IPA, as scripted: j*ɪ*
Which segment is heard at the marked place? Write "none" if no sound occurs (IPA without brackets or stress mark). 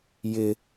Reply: ɪ